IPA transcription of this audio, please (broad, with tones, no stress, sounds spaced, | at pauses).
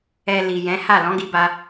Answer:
ɛ˧ l i˨ j ɛ̃˨˦ h a˦˨ l ɔ̃˨˦ ɡ i˧ b a˧